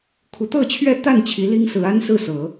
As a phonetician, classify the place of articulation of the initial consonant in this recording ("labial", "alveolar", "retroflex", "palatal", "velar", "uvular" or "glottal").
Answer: velar